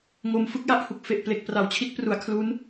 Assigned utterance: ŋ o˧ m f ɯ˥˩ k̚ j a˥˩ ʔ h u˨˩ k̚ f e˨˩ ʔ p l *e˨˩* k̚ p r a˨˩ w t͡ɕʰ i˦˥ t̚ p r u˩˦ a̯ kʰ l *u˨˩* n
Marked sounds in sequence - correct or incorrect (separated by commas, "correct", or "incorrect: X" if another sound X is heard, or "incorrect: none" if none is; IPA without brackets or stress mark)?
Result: correct, incorrect: u˦˥